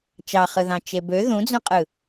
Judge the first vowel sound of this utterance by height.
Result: low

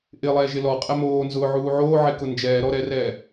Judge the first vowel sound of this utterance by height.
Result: high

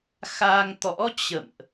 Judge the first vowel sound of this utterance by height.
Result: low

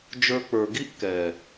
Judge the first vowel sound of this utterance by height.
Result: mid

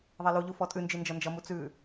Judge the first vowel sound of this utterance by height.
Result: mid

